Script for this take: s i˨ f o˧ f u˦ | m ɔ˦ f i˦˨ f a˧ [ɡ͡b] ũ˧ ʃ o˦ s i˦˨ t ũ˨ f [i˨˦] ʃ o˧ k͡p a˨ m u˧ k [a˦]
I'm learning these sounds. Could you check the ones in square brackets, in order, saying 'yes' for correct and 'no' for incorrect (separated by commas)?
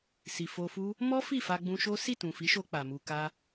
yes, yes, yes